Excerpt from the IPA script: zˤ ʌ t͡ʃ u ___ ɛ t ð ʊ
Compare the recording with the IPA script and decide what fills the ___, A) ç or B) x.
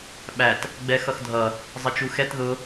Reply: B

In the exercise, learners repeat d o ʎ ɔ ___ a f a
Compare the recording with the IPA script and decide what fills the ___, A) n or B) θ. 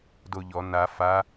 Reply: A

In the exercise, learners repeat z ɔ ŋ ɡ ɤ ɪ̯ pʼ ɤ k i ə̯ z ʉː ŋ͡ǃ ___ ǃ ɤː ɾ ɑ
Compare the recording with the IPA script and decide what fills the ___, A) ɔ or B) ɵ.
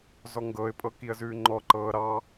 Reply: A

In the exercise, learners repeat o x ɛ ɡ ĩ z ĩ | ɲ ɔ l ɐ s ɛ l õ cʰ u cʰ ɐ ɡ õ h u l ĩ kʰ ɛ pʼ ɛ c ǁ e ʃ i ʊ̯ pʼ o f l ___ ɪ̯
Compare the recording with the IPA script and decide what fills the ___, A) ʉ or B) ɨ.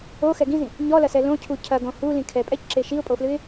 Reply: B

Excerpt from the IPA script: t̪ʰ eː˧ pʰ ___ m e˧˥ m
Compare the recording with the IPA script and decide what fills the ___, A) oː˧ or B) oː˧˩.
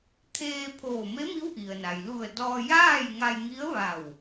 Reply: B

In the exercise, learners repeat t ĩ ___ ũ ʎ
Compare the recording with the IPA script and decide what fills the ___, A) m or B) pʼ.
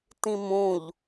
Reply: A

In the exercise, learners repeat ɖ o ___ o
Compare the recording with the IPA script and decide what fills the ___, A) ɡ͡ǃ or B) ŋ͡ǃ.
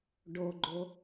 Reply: A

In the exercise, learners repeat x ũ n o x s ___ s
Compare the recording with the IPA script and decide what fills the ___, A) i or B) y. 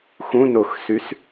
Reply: B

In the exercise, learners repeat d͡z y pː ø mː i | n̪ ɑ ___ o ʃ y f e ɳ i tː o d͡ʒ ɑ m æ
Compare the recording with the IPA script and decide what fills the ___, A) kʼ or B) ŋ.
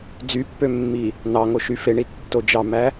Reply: B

